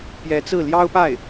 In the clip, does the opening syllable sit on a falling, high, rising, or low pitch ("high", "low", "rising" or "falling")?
rising